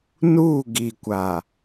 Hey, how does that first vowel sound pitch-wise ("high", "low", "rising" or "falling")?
falling